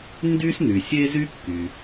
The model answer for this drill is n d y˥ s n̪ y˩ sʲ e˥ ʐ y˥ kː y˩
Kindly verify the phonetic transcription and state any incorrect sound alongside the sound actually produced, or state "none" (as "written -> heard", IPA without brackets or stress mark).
ʐ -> z